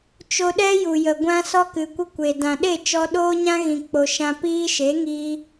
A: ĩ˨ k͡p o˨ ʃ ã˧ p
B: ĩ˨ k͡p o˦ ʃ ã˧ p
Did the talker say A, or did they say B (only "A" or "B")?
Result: A